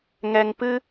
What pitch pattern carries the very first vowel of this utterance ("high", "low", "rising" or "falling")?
low